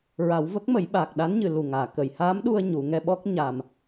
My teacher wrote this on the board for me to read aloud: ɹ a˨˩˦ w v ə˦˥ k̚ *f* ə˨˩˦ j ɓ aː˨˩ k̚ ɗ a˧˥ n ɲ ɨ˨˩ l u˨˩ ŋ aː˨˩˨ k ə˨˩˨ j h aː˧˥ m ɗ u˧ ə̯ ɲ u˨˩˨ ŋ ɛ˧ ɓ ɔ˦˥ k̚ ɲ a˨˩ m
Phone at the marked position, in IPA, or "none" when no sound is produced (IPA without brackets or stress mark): m